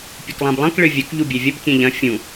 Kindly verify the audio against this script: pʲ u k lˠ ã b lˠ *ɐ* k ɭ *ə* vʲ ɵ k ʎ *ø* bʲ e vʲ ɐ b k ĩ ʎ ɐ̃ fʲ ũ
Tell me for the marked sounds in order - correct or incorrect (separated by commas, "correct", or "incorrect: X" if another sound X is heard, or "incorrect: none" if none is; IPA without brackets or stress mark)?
incorrect: ɐ̃, incorrect: ɨ, incorrect: u